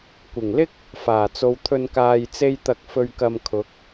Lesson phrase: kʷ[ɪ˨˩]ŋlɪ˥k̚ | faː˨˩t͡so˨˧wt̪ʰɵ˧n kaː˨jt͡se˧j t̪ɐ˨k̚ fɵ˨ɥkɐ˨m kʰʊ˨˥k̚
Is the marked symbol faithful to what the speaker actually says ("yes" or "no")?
yes